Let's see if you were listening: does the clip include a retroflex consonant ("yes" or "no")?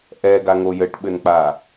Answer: yes